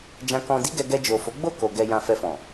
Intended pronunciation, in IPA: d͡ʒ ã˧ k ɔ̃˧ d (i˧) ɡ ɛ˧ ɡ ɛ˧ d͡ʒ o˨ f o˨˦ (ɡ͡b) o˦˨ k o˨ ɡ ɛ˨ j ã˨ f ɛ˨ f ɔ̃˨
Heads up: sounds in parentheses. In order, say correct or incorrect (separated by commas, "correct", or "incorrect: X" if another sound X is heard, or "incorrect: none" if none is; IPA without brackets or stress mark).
incorrect: i˦, correct